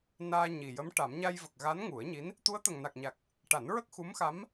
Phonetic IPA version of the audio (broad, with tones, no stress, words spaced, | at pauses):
naː˧ɲi˨˩jə˧˥m ʈa˨˩˦m ɲa˧jvə˨˩k̚ ɣa˧˥nŋu˨˩˦ə̯ɲi˧˥n | t̪u˧˥ə̯t̪ə˨˩ŋna˨˩k̚ɲa˨˩k̚ | ʈa˨˩˦nɹə˦˥k̚xu˧˥m xa˧˥m